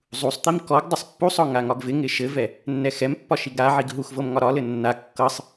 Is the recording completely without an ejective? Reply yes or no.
yes